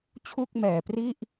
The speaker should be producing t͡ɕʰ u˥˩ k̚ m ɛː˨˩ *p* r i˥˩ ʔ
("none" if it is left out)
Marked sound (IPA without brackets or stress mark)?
p